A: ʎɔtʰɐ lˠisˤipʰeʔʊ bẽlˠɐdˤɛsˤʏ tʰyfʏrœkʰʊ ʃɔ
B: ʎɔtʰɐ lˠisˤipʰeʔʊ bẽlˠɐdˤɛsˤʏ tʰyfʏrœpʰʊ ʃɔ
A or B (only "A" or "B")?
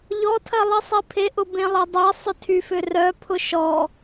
B